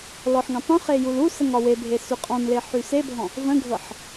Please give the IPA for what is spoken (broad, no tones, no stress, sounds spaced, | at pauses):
l ɔ ħ ŋ ə̃ tˤ ũ χ e j u l u s ə ŋ ɒ w e bʱ e s y qʼ ɔ̃ n l e ħ y s e bʱ ɔ̃ | v ə̃ ɡʱ ɤ ħ